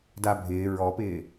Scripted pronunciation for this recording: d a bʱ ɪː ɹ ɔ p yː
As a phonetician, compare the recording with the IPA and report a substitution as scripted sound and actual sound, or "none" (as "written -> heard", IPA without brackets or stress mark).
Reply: yː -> ɪː